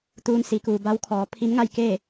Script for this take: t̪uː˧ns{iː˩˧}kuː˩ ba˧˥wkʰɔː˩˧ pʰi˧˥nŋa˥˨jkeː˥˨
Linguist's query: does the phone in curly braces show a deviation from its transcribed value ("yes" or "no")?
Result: no